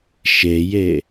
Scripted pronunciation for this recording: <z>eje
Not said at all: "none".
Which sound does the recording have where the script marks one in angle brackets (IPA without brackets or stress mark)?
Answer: ʃ